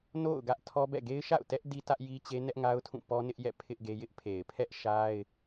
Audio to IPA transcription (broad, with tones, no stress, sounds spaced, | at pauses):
n o̰˦˨ ʊ̯ ɡ ä˦ ʔ tʰ ɔ˦ b ɛ̰˦˨ ɡ e˦ ɪ̯ ʃ a̰˦˨ ʊ̯ t ɛ˦ ʔ d i˦ t ä˦ ʔ j i˦ t͡ɕ e˦ n ɛ˦ ʔ ŋ a˦ ʊ̯ tʰ ũ˦˨ p ɔ˦ n ɪ˦ ʔ j ɛ̰˦˨ pʰ ɪ˦ ʔ ɡ e˦ j ɪ˦ ʔ pʰ e˨ ɪ̯ pʰ ɛ˦ ʔ ʃ a˦ ɪ̯